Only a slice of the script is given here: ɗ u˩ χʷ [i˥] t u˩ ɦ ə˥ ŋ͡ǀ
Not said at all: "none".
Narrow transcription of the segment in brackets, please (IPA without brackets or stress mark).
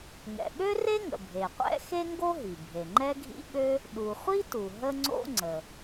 i˥